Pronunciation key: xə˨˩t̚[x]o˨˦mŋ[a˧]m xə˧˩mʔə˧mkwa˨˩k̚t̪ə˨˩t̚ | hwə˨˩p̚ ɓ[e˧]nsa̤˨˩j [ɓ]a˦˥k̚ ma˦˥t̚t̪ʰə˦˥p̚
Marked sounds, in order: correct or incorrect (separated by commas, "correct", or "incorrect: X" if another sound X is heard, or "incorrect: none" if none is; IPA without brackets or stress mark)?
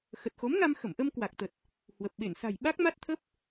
correct, correct, incorrect: e˧˩, correct